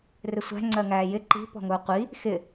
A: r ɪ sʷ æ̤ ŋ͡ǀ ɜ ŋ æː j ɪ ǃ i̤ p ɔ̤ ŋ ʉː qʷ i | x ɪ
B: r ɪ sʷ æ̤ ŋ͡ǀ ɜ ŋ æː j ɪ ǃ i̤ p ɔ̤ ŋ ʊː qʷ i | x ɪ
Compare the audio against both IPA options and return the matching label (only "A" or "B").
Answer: B